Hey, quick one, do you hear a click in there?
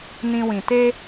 no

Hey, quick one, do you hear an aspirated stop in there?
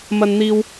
no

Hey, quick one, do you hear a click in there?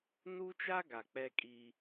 no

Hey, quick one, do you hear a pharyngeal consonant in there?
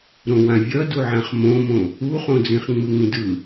yes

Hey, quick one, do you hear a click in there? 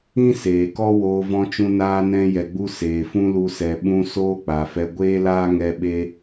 no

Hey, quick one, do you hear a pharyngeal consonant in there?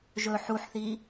yes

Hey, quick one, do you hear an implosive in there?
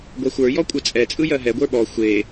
yes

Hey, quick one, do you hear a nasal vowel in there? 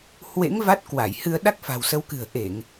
no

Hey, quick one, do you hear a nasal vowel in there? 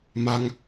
no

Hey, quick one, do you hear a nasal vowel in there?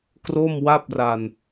no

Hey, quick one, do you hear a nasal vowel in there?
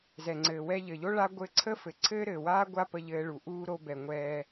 no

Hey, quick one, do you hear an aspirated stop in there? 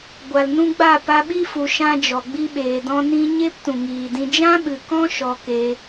no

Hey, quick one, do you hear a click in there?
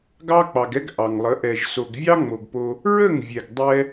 no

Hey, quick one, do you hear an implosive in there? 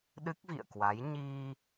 yes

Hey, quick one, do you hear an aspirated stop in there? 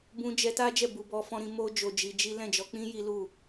no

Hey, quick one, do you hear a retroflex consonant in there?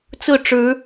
yes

